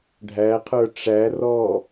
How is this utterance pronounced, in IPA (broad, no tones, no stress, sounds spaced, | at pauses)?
ɖʱ æ qʰ ə˞ ʈ͡ʂ æ r ɔ